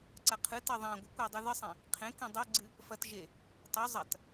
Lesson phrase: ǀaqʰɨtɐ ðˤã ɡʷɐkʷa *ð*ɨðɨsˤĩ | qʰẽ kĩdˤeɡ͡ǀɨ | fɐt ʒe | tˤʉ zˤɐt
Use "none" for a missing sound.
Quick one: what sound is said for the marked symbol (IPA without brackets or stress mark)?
dˤ